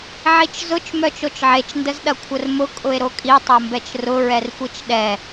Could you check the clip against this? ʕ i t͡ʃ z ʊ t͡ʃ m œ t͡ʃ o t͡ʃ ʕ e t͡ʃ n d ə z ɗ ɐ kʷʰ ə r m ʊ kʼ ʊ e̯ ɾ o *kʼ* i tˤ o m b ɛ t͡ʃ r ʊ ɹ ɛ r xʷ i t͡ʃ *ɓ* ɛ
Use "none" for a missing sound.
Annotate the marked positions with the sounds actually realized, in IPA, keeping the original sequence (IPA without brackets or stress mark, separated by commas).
kʼ, ɗ